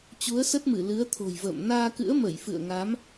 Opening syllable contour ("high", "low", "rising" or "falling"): rising